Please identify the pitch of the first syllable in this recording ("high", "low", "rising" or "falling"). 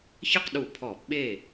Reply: falling